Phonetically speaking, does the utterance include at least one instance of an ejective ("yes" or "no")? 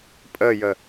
yes